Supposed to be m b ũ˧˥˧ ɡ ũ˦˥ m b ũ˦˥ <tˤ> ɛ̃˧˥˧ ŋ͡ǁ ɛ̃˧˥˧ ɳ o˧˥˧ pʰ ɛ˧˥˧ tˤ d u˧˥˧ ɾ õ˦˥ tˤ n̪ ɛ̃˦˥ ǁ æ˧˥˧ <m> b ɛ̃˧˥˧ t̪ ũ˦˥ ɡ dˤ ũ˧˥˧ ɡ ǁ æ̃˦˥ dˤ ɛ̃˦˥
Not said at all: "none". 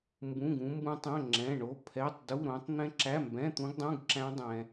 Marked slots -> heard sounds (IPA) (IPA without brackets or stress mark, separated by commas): tˤ, m